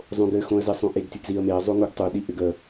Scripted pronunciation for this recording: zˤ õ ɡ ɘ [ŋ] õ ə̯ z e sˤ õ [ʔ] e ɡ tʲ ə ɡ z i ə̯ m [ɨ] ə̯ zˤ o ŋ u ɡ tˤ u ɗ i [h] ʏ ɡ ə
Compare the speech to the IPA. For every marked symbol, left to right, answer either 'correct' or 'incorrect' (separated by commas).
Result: incorrect, correct, incorrect, incorrect